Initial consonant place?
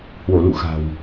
glottal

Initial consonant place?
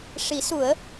retroflex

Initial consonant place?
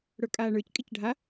retroflex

